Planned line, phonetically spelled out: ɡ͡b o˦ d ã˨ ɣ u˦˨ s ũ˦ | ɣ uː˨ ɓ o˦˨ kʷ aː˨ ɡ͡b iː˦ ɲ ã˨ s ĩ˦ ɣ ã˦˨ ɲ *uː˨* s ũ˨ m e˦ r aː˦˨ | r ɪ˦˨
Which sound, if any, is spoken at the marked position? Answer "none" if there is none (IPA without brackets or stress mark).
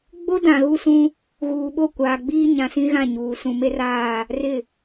uː˨